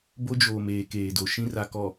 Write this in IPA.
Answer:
b o˦ d͡ʒ oː˨ m eː˨ k eː˨ d o˨ ʃ ĩ˦ r a˨ k ɔ˨

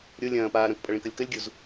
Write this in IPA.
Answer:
ɾʲ o lʲ ɐ̃ː p aː ɾ ɐ̃ k pʼ ɐ ɭ ĩ k ɐ lʲ k ɐ lʲ ɡʲ u z

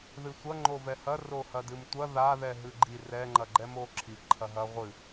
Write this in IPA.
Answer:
ð ɨ sʷ ɐ ŋ͡ǃ o v ɛ h ɐ r o h ɐ d ɨ m tʷ ɐ ð a ð ɛ ɦ ɨ ɡ͡ǃ i r ɛ ŋ͡ǃ ɐ ɡ͡ǃ ɛ m o ǁʰ i ǃʰ ɐ ɦ ɐ ʁʷ ɨ

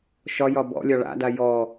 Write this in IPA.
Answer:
ʃ ɒ j ɒ b ɔ̰ lʲ ɒ ɭ a̰ d a j ɔ

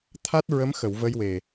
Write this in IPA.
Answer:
t̪ʰ a˦˥ t̚ ɹ ə˧˥ m x ə˨˩˨ w v ə˧ j w e˨˩

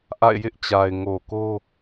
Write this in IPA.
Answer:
ʔ a̰˦˨ ɪ̯ j ɪ˦ ʔ t͡ɕ a˨ ɪ̯ ŋ o˨ k o˦

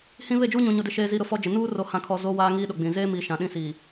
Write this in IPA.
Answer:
h ĩ˦ β e˦˨ d͡ʒ uː˦ ɲ ũ˨ ɲ o˦ d ɪ˦ ʃ eː˦ z iː˦ ɾ ʊ˨ f ɔ˦ d͡ʒ ɪ˨ n uː˦ r o˨ h ã˨ kʰ ɔ˨ z o˦ w aː˦ ŋ iː˦ ɗ ʊ˨ ɡ͡b ĩ˨ z eː˦ m iː˨ ʃ ã˨ ɗ ĩ˦ s iː˨

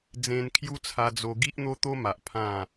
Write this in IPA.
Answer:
d͡z ẽ˧ n kʰ j u˦ t͡sʰ a˧ d͡z o˧ ɡ i˦ ʔ n̪ o˦ t̪ o˦ m a˨ ʔ pʰ ã˥˧

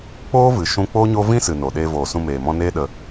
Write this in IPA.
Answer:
k͡p oː˦ v ɨ˨ ʃ ũ˧ k͡p oː˦ ɲ o˦ v ĩ˦ s ɨ˨ n o˨ ɗ eː˧ v oː˨ s ũ˧ m eː˨ m ɔ̃˧ n eː˦ ɗ ə˧

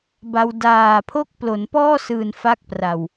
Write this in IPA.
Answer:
b a˧ w d aː˨˩ pʰ o˦˥ k̚ p l o˩˦ n p ɔː˥˩ s ɯː˨˩ n f a˦˥ k̚ p r a˨˩ w

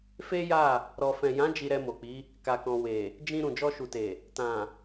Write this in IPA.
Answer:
f e˦ j a˦˨ | ɾ ɔ˨ f ɛ̃˨ j ã˨˦ d͡ʒ i˧ ɾ ɛ˧ m o˨ k͡p i˨˦ | k a˨ k ɔ̃˨ w e˨ | d͡ʒ ĩ˧ ɾ ũ˨ d͡ʒ ɔ˧ ʃ u˨ t e˨ | t ã˨

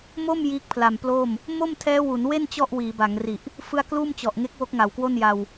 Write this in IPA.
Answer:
m o˥˩ m j iː˦˥ k̚ pʰ l a˨˩ m p l oː˥˩ m | m o˥˩ m tʰ ɛː˦˥ w u˩˦ n w e˥˩ n t͡ɕ ɔ˥˩ ʔ w iː˩˦ b a˩˦ ŋ r i˨˩ ʔ | f ɯ˦˥ a̯ k l uː˥˩ m t͡ɕ ɔ˨˩ ʔ ŋ e˦˥ k̚ w o˦˥ k̚ ŋ a˨˩ w k w o˥˩ n j a˧ w

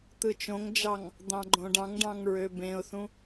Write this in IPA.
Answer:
t̪ ɯ t͡ʃ õ ŋ d͡ʒ ɑ ŋ | d̪ ɑ̃ ɡ͡ǃ õ ɖ ɑ̃ ŋ ɖ ɑ̃ ŋ ɹ ø b ẽ ʊ̯ θ ũ

